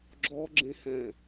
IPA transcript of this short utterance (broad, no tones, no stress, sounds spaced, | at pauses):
ɡ͡ǁ ɔ ɡ͡ǁ ẽ h ɛ̃